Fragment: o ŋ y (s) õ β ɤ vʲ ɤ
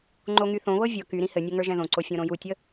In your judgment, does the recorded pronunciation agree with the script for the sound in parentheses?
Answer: no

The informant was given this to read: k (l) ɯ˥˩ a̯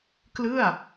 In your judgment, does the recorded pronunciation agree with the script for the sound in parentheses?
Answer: yes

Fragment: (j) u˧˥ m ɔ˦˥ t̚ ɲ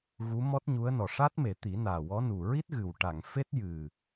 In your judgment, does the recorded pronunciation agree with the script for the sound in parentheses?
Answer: no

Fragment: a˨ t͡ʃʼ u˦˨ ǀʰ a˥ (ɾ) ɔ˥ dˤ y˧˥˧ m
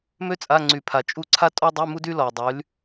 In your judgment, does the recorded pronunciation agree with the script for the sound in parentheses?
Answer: no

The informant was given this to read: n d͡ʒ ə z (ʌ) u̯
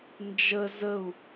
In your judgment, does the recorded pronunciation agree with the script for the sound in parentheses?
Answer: no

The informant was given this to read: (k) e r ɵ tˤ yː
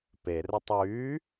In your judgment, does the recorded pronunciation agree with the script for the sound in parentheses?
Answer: no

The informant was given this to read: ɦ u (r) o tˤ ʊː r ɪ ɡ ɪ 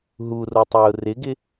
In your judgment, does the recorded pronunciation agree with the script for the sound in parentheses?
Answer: yes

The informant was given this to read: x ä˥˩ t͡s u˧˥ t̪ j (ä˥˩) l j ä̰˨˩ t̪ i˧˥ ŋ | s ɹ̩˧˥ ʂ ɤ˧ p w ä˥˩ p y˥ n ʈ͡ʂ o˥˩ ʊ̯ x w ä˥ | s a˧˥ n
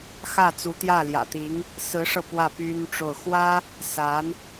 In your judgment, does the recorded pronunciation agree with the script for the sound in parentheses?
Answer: yes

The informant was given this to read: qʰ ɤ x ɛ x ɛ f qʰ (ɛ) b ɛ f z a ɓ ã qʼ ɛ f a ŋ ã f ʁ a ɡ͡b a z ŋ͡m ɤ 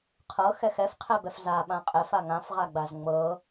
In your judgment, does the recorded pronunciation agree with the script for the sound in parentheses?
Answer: yes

